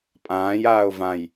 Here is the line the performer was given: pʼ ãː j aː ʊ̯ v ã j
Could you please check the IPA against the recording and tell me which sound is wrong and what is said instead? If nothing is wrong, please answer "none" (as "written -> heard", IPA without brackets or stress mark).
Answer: none